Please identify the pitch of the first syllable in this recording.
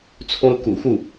high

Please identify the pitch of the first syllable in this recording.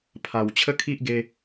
low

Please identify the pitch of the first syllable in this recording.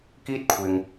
high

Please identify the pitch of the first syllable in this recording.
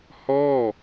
falling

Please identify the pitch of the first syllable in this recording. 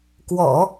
low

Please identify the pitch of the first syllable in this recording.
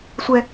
high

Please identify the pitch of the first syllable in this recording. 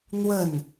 falling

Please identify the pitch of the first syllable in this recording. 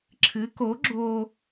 rising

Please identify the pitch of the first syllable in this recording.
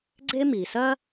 high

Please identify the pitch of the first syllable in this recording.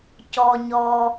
low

